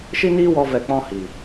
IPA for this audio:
ʃ i˦ n iː˦ w ɔ˧ v ɛ˧ k͡p ɔ̃˦ h i˨

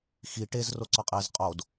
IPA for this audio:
x i ʈ e z r o ǀ ɒ qʼ e z qʼ o d

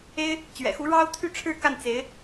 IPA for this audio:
e˥ ɪ̯ | t͡ɕ ɥ ɛ̰˨˩ x u˧˥ ɻ ɑ˥ ʊ̯ t̪ʰ y˥˧ ʈ͡ʂʰ ɻ̩˥˧ k a˥˩ n t͡s e˧˥ ɪ̯

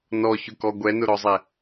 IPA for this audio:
n ɔ ç ʊ k ɔ ɡʷ ɛ n ʊ ɾ ɔ zˤ ɛ

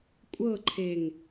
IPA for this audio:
kʷʼ ɤ ǃʰ e ŋ

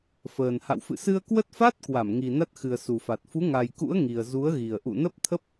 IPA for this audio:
f əː˨˩ n h a̰˧˨ w f ɨ̰˧˨ s ɨ˧ ə̯ k w ə˦˥ t̚ f a˦˥ t̚ k w a˧˩ m ŋ i˨˩ n a˦˥ t̚ x ɨ˨˩ ə̯ s u˨˩ f a˨˩ t̚ f u˨˦ ŋ a˨˩ j k ṵ˧˥ ə̯ ŋ i˨˩ ə̯ z u˨˦ ə̯ ɣ i˨˩ ə̯ ʔ ṵ˧˨ n ə˦˥ p̚ t̪ʰ ə˦˥ p̚

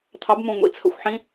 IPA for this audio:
t̪ʰ ɑ˨˥ b m ũ˧˩ ŋʷ ḭ˧˩ t͡sʰ ə̰˨˥ xʷ ħ ĩ˨˥

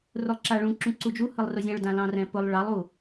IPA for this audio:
r ʊ lˠ ǁ a ɭ ũ ǁ ũ ǀ u d͡ʒ u h ɯ lˠ r ʊ zʲ ã ɭ d ã l ɑ̃ r ɛ̃ p ʊ lˠ ɭ ɑ lˠ u

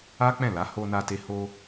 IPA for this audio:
a˦ k͡p ɛ̃˦˨ l a˨˦ h o˧ n a˧ t e˧ h o˧

